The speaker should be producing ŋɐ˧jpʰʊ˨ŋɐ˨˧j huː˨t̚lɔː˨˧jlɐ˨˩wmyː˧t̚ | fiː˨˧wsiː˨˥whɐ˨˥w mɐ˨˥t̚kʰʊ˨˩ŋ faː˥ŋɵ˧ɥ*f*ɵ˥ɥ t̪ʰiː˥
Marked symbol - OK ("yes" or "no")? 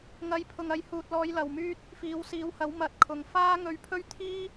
no